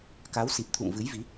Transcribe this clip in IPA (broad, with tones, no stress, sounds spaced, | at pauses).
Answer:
k a˨˦ w s i˨˩ p̚ t̪ʰ ṵ˧˨ ŋ v ɨ˨˦ j v i˨˦